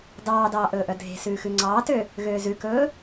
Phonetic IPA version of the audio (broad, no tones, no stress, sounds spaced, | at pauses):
d ɑː d ɑː ʔ ɵː ʔ œ dʱ e̤ s ʉː x ʉ ŋ͡ǀ ɑː t ø | ɣ øː z ʉ k ɵː